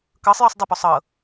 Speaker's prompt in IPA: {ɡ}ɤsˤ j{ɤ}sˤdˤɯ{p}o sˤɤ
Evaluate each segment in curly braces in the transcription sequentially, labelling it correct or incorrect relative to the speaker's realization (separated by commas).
incorrect, incorrect, correct